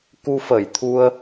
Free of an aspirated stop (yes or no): no